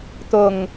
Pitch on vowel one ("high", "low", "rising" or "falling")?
low